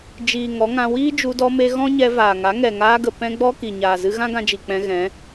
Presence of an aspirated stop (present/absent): absent